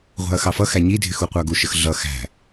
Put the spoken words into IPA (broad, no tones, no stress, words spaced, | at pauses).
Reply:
ʁʷæ̤ɐ̯xɑfʌxæ ɲidʱɪx uqʷɑɡuʃəx ɮʌ xæ̤